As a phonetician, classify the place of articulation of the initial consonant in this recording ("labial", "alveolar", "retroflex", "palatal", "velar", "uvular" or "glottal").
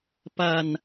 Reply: labial